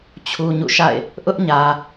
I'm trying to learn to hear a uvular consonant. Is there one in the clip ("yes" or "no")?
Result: no